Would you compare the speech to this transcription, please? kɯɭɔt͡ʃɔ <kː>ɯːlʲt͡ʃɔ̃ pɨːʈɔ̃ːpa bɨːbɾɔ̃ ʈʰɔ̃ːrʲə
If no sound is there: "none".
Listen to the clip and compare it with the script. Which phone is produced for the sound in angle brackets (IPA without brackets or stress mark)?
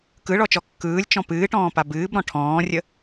kː